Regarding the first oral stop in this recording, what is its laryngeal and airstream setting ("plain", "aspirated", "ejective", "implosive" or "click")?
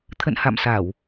aspirated